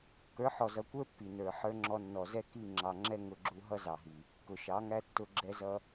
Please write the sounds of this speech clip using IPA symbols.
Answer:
k ə˞˨˦ ħ ɔ˨ z ʌ˨ kʷ ə˞˦ pː i˨ n ə˞˨ ħ ə˞˧ ŋ͡ǁ ɔ˧ nː ɔ˨ z ɛ˦ k i˦˨ ŋ͡ǁ ɑ˨ ŋ͡ǁ ɛ˦ ŋ ʊ˧ ɡ͡ǁ u˧ ɦ ʌ˦ z ɑ˨ ɦ i˨ | k ʊ˨ ʃ ɑ˨˦ ŋ æ˦ tː ʊ˧ ɡ͡ǁ ɛ˦ z ʌ˦

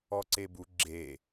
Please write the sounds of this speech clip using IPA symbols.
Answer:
ɔ ǀ e b u ɡ͡ǁ e

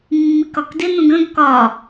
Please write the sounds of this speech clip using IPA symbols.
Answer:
mː i k ɒ k d ɪ n ũ ɡ ə̃ ɡ k ɒ

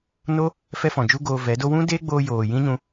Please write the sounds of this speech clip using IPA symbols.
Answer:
n o˦ | f ɛ˦ f ɔ̃˨ d͡ʒ u˦ ɡ oː˧ v ɛ˨˦ d o˦ w ũ˦ d eː˦ ɡ͡b oː˧ j oː˨ j ĩ˦ ɲ ũ˧

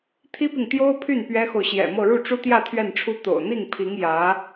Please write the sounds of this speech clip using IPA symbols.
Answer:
t̪ʰ i˥ p i˨ ŋ t̪ j o˥ ʊ̯ pʰ y˥˩ n p ɥ ɛ˥ x o˨ ʊ̯ ɕ j ɛ̰˨˩ m ɤ˥˧ ɻ u˥˩ ʈ͡ʂ u˥ t̪ j ä˥˧ t̪ʰ ɥ ɛ˥˩ n ʈ͡ʂʰ u˥ t̪ o̰˨˩ ʊ̯ n̪ i˥˩ ŋ pʰ i˧˥ ŋ j ä˧˥

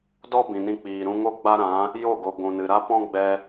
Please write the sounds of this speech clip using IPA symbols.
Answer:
d ɔ˦ b ĩ˨ n ĩ˧ k͡p iː˨ ɾ ũ˧ ŋ o˦ ɡ͡b a˦ ɾ ã˨˦ | j o˦˨ ɡ o˨ ɡʷ ũ˨ n ɨ˨ ɾ a˦ p ɔ̃˦ ɡ͡b ɛ˧

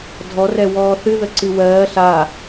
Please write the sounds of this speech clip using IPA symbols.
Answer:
dʱ ɔ r ɛ w ɔː θ ɨ ð ə ǀ ɨ w ɜː ɬ a

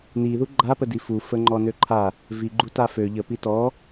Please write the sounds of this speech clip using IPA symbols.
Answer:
n i ð u ɡ͡ǃ a p ə d i f u f ə ŋ͡ǃ ɔ n ø ǃʰ a | v i ɡ͡ǃ u t a f ø ʎ ə p i t ɔ

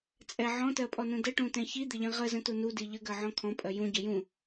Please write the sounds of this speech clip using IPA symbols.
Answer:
t͡sʼ ɛ ʕ ɔ̃ t ɜ pʼ ɔ n ũ d ə ʈ ũ t ɛ̃ ç i d̪ ɪ ʎ ĩ ʁ ə z ə̃ t u n u d i ʎ ə ɡ ɜ ʕ ɔ̃ kʰ ɔ̃ pʼ ɜ j ũ ɟ ə j ũ

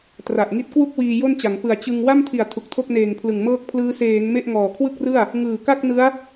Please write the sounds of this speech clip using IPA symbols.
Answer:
t r a˨˩ ʔ ŋ i˦˥ t̚ k w u˥˩ k̚ w iː˧ j o˥˩ n t͡ɕ a˩˦ ŋ p ɯ˨˩ a̯ t͡ɕ ɯ˧ ŋ w a˥˩ m tʰ i˨˩ a̯ tʰ u˨˩ k̚ tʰ o˥˩ k̚ n eː˨˩ ŋ pʰ l ɯ˨˩ ŋ m ɤː˥˩ k̚ pʰ l ɯː˦˥ s eː˩˦ ŋ m e˥˩ ʔ ŋ ɔː˨˩ kʰ w ɯ˥˩ k̚ r ɯ˥˩ a̯ | ŋ ɯː˨˩ k a˥˩ k̚ n ɯ˦˥ a̯

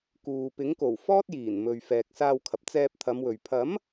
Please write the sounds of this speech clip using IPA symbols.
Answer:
k uː˨ p ɪ˨˥ ŋ k o˨˩ w f ɔː˥ t̚ j iː˨˩ n m ɵ˨ ɥ f ɛː˨ k̚ s aː˧ w kʰ ɐ˨ p̚ t͡s ɛː˧ p̚ t̪ʰ ɐ˨˧ m w ɵ˨ ɥ pʰ ɐ˨˥ m

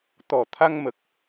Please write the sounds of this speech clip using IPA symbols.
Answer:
t̪ ɔ˨˩ t̪ʰ a˧ ŋ m ə˨˩ k̚

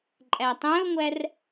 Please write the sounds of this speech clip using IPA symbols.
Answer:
ǃʼ æ tˤ ɛ̃ o̯ ŋʷ æ r

